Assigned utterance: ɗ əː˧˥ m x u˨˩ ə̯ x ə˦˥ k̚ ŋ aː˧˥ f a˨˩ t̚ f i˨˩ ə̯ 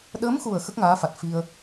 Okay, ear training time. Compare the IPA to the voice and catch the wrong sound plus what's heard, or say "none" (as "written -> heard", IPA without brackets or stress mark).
i˨˩ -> i˧